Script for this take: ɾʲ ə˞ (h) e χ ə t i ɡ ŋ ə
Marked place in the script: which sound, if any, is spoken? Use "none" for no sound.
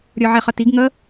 ʕ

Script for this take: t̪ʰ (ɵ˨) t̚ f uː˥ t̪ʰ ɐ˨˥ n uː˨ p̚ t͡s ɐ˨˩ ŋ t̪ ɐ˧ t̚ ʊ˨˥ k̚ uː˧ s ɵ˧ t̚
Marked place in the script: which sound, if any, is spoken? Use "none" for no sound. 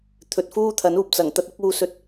ɵ˨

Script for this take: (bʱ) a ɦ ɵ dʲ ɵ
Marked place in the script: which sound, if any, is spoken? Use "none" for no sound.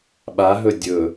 ɓ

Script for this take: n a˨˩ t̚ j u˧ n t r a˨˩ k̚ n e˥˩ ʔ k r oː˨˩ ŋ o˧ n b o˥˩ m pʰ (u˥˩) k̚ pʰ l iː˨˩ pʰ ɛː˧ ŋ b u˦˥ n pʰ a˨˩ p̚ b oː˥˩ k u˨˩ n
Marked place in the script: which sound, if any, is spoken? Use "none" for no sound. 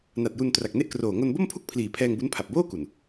u˥˩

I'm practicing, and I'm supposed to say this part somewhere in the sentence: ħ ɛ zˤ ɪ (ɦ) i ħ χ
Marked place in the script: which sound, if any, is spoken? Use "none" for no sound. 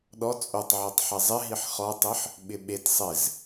ɦ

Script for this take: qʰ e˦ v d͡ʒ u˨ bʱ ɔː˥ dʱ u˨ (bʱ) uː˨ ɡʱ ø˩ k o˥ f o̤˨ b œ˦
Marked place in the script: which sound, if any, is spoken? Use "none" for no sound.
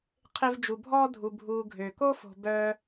bʱ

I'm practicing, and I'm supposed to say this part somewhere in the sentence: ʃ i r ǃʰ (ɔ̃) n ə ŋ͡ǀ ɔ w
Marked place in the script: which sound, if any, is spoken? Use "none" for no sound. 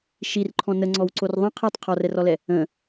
ɔ̃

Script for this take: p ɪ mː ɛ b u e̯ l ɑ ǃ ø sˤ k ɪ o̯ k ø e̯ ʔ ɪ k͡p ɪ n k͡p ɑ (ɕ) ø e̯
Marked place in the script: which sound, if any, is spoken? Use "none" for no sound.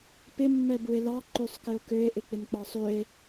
sˤ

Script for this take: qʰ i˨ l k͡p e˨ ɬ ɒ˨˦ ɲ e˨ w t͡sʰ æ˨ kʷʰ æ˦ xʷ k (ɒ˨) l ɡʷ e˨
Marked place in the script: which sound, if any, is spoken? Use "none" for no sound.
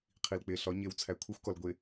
ɒ˨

